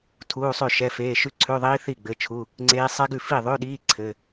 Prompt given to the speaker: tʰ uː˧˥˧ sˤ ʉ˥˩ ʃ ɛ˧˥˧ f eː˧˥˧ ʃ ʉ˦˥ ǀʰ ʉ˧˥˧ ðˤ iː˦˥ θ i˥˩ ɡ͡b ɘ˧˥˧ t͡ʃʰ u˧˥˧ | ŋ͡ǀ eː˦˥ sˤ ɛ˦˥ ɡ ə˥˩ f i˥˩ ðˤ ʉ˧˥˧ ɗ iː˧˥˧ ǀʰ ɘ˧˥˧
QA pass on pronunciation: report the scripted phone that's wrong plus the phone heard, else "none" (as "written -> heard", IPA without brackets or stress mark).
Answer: ə˥˩ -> ʉ˥˩